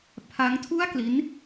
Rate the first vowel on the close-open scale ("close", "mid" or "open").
open